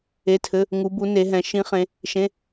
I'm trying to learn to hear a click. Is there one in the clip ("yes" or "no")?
no